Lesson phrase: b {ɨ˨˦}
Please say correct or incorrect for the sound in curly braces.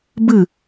incorrect